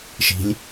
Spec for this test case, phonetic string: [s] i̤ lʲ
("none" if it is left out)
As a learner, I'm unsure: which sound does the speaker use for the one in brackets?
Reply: ʃ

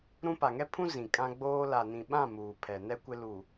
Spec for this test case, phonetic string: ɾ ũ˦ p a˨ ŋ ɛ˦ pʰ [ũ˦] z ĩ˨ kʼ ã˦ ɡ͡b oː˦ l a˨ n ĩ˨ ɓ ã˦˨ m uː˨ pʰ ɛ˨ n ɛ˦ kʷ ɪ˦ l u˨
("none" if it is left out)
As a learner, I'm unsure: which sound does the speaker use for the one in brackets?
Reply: ũ˦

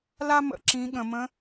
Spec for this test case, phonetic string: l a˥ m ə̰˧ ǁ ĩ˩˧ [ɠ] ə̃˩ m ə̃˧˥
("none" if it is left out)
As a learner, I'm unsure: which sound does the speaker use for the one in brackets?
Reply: ɠ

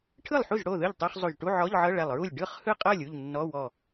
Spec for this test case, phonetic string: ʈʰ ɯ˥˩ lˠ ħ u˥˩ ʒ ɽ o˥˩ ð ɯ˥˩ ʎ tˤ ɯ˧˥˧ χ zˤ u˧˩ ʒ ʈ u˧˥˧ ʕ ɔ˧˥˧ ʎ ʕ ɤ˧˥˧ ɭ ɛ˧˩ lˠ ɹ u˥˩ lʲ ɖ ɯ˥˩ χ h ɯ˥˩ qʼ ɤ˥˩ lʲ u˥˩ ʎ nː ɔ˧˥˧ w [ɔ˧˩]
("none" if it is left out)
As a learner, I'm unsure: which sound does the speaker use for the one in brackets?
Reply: ɔ˧˩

